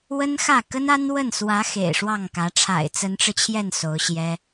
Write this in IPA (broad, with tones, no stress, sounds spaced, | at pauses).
w ə˥ n x ä˥˩ k ə˥ n a˥ n w ə˥˩ n s w ä˧˥ x ḛ˨˩ ɪ̯ ʂ w ɑ˥˩ ŋ k ä˧˥ ʈ͡ʂʰ a̰˨˩ ɪ̯ t͡s ə˧˥ n ʈ͡ʂ ɻ̩˧ t͡ɕʰ j ɛ˥˩ n s o˧˥ ʊ̯ ɕ j ɛ˥